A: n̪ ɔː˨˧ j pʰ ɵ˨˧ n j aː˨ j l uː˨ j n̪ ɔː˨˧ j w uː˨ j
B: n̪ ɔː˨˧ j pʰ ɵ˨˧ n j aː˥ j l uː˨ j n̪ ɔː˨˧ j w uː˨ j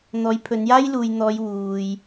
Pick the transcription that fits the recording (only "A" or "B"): B